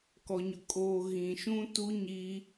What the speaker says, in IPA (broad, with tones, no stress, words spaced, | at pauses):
kɔ˨ɲʊ˨kʼoː˨ ɣĩ˨ʃũ˦ tu˦ɲiː˦